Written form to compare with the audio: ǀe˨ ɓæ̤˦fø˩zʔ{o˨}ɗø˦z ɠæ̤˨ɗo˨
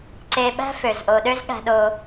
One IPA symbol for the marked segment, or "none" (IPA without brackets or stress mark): o˨